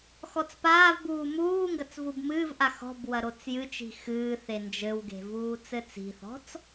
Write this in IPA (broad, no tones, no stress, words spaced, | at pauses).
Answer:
xɔt͡spaːvbuː muː ŋɡɐt͡svubmɨːvʔa xɔ̤bwɐ ɾot͡sjɨt͡ʃi̤ xɨːθe nd͡ʒɘwɡe̤ vuːt͡sɘt͡si̤θɔ̤t͡s